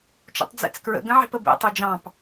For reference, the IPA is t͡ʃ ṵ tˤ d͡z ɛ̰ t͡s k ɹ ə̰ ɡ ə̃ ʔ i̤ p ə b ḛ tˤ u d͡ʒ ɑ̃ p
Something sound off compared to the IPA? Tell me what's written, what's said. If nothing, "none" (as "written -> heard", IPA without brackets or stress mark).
ʔ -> ʕ